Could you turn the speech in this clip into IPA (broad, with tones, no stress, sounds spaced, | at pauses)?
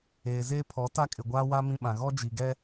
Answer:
eː˨ z eː˦ pʰ ɔ˨˦ t a˦ kʼ ɪ˨ ɡʷ aː˦ w a˦ m ĩ˦ ɓ ã˨ ɣ ɔ˦ d͡ʒ i˨ ɡ ɛ˦